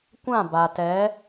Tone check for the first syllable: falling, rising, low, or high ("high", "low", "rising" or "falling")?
falling